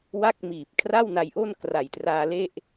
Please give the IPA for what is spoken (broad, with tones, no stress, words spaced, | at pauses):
wa˥˩k̚miː˨˩p̚ kʰra˥˩wna˧jʔo˥˩n kra˨˩jtraː˧le˥˩ʔ